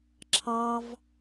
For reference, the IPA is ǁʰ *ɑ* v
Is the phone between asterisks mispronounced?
no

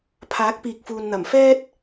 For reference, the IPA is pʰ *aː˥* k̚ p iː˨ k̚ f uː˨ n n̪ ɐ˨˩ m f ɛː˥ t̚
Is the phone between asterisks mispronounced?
yes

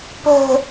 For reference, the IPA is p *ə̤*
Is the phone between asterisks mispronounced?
no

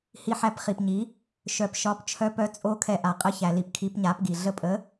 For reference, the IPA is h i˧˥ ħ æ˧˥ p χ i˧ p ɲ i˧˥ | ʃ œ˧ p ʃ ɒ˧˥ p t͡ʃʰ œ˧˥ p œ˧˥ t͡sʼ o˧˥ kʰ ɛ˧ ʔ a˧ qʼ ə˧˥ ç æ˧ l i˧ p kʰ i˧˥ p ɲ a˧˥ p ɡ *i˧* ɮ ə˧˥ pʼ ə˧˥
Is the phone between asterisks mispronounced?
no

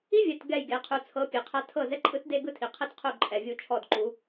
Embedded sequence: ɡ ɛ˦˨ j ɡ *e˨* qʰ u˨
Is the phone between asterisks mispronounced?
no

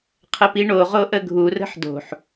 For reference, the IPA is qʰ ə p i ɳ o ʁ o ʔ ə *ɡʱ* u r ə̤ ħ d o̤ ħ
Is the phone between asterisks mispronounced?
no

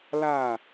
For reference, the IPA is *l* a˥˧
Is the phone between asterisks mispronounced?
no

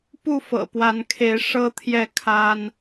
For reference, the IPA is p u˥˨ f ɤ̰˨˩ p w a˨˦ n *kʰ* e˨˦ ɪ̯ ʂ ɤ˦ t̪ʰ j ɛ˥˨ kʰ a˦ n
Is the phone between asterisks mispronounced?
no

